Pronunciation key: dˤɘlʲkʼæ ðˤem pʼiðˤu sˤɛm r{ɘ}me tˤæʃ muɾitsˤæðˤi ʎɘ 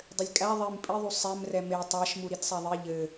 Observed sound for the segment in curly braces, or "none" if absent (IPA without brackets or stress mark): ɛ